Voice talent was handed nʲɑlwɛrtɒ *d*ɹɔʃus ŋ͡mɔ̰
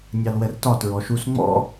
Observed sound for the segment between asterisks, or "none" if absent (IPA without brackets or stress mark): t